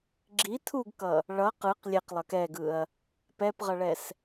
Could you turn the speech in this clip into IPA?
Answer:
ɡ͡ǁ i tʰ u ɡ k ʌ | ɭ ʌ q ɯ q lʲ e q lˠ ʌ k ɛ ɡ ɯ ɐ̯ | p ɛ p ʁ ʌ ɭ ɛ s

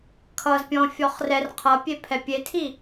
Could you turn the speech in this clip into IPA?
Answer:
kʰ ʌ z pʲ ɔ̃ fʲ ɔ χ r ɛ r qʰ ʌ pʲ e pʰ ɛ pʲ e tʰ i

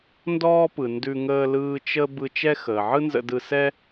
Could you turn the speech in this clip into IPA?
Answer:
n d ɔː˥ p ɯ˩ n d ʉ˧ ŋ əː˧ l ɯː˧ t͡ʃ ə˧ b ɯ˧ t͡ʃ ɛ˥ x əː˩ ʕ ɯ˥ n z ə̰˧ d ɯ˧ s ɛ˥

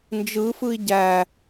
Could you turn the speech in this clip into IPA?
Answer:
n d͡ʒ ɯ f ɯ i̯ ɟ æ

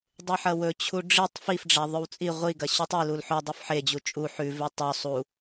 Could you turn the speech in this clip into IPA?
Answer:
dˤ e ħ ɐ w ɵ t͡ɕʰ u ɖ͡ʐ i tˤ f i f ɖ͡ʐ a ðˤ ɵ w t͡sʼ i ʁʷ i ɡ ɐ ɕ ʉ tˤ i l u l ħ ɵ dˤ u f ħ e d͡ʑ u t͡ʃʼ u ħ ʉ v e tˤ ɵ sˤ u

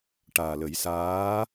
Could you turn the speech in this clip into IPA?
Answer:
ʈ aː˨˩ l ə˨˩˦ j s aː˧˥

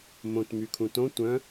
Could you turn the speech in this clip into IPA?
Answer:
m õ t m y kʰ ũ t õ tʷ œ̃

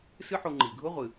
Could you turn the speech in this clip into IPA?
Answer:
s ɨ˥ ħ o˧ ŋ͡ǃ i˩ ɡʱ ʊ˥ ʁʷ ɨ˩

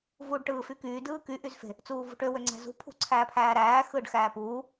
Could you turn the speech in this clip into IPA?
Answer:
v uː ɖ ʈ ɯː f y k yː d ɯː k y ʔ y z f e̤ | t͡s uː v ṳ ʈ ø w ø ŋ͡ǀ æ̤ z ṳ pʰ ṳ ǀʰ æː pʰ æː ɾ æː x ɯː ɖ x æː p uː

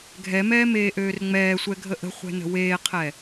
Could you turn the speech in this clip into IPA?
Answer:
ɡʱ ɛ m ɛː m eː ʔ øː r ŋ͡m ɛː sʷ ɛ ɡʱ ə ʔ ə̤ χʷ ɛ̤ n ə̤ w eː qʰ ɛ

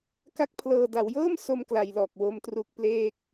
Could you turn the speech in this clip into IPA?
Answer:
k a˥˩ k̚ pʰ l ɤː˧ d a˩˦ w j ɤː˥˩ m s o˥˩ m k l a˧ j l ɔː˨˩ k̚ w o˦˥ m t r u˦˥ k̚ p l eː˥˩ k̚

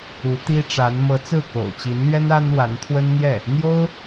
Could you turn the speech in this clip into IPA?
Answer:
u˧˥ t̪ i˥ ʈ͡ʂ a˧˥ n m ɤ˧˥ t͡s ɹ̩˥˩ k o̰˨˩ ʊ̯ t͡ɕ i˧˥ n l ɥ ɛ˥ n a˥ n w a˧˥ n t̪ʰ w ə˥ n n̪ j ɛ˥˩ | n̪ j o˥ ʊ̯

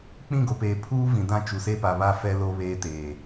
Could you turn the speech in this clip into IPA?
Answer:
k͡p ĩ˦˨ ɡ o˨ p eː˨ pʰ uː˦ v ĩ˨ d ã˦˨ t͡ʃ u˨ s e˦ p a˨ β a˦ f ɛ˦ l o˦ β eː˦ t eː˨

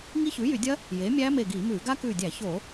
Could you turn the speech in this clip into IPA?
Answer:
ŋ i˦˥ ç ʉː˩˥ j y˧˩˧ dʲ ɐ˦˥ | j eː˩˥ mʲ æː˦˥ m e˧˩ ɡ iː˧˩˧ m ʉː˧˩˧ ɡ a˦˥ k ʉː˧˩ dʲ æ˧˩˧ ç o˧˩˧

